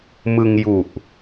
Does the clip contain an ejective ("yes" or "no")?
no